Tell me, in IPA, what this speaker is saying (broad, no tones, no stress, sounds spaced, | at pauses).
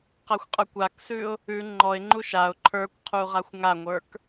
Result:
q a xʷ qʼ ə˞ kʷ a k s ʉ ʊ̯ | ʉ ŋ͡ǃ ɔ ɪ̯ ŋ͡ǃ u ʃ a ʊ̯ ǃʰ ə˞ kʷ qʰ u ʁ a xʷ ŋ a ŋʷ ə˞ k